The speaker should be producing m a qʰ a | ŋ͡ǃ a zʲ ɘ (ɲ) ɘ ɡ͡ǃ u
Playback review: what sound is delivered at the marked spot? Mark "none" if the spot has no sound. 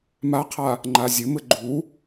m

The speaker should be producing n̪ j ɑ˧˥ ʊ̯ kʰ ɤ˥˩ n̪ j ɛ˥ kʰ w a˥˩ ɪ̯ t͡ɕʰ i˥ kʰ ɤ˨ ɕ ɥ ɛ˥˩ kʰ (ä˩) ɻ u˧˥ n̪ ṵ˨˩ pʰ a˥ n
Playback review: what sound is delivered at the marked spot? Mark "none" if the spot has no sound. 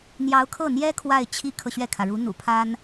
ä˩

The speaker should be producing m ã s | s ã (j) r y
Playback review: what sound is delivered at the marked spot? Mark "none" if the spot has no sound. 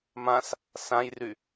j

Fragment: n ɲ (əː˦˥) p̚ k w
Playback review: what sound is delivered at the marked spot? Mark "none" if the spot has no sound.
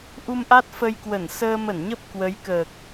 ə˦˥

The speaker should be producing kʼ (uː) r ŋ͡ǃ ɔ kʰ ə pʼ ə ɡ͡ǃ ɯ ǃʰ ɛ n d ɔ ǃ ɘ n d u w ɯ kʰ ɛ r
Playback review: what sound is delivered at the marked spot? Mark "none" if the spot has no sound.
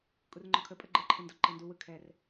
u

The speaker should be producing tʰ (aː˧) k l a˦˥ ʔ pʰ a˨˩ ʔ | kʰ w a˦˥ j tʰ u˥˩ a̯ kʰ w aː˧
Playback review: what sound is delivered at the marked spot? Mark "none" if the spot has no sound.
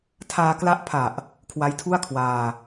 aː˧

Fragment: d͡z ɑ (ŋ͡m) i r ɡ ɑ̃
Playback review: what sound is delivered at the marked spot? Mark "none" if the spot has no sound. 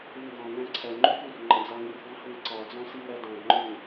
ŋ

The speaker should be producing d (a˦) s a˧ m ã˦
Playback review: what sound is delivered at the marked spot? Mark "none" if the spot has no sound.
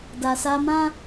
a˨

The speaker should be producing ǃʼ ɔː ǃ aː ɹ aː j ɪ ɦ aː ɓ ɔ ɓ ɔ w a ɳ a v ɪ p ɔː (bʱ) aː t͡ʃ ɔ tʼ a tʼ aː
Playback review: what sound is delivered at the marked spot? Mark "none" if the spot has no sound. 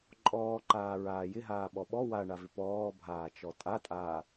bʱ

